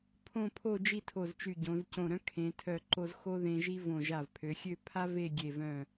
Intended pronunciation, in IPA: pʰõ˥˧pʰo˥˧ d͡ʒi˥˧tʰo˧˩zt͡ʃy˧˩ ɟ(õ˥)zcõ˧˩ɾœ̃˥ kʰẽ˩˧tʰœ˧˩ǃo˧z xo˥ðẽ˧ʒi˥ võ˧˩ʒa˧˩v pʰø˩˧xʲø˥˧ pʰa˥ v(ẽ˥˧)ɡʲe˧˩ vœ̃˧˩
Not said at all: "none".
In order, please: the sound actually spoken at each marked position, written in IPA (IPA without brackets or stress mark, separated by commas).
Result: õ˩˧, e˥˧